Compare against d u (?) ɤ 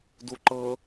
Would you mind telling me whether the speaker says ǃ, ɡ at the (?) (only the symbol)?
ǃ